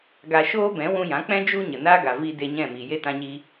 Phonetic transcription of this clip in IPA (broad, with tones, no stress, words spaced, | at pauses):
ɡa˧ ʃoː˦bɛ̃˨˦ wũ˧jã˨˦k͡pɛ̃˦ d͡ʒu˧ ɲə˨ naː˦ɡa˨ vi˧ de˧ɲɛ̃˦˨ miː˨je˦ tã˧ɲi˧